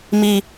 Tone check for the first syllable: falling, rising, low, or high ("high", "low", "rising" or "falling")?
low